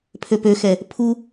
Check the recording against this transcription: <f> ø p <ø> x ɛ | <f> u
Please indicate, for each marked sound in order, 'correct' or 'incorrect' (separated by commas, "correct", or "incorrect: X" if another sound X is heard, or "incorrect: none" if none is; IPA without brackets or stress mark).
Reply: incorrect: pʰ, correct, incorrect: pʰ